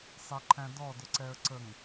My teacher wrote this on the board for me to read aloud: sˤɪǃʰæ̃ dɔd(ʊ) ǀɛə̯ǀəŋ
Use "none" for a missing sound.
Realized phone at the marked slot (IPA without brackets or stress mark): ʊ